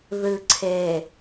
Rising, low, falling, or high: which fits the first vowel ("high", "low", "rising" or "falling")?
low